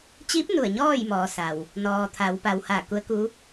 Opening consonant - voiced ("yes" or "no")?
no